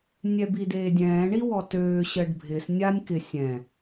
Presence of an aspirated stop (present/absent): absent